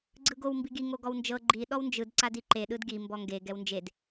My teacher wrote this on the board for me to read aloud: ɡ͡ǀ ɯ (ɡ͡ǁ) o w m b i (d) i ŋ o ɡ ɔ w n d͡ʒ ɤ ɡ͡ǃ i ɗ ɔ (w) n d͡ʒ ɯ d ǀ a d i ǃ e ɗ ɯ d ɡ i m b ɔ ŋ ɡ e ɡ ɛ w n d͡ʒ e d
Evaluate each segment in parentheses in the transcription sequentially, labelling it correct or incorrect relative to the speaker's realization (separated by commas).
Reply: incorrect, incorrect, correct